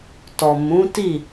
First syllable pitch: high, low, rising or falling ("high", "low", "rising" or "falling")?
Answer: low